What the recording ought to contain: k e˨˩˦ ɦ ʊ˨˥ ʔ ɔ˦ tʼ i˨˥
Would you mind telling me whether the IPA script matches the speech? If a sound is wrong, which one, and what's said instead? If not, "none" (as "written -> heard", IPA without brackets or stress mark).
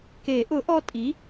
ɦ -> ʔ